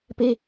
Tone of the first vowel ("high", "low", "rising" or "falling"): high